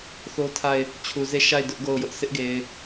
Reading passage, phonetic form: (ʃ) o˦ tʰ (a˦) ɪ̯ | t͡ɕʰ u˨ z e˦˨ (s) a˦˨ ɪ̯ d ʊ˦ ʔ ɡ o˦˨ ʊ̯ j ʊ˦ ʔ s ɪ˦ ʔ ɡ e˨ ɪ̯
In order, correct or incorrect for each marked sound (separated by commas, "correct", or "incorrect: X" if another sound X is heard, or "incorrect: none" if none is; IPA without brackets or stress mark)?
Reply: incorrect: θ, incorrect: a˦˨, incorrect: ʃ